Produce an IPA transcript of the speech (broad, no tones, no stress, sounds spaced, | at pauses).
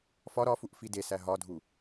f ɒ ɾ ɒ f u ʔ f i d e s æ ɦ ɒ dʱ u